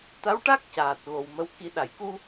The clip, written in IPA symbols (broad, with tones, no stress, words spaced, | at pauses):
t̪a˧˥wʈa˦˥k̚ caː˨˩t̚ɣo˨˩wmə˧˥w ki˨˩˦ɗa˨˩˨jku˧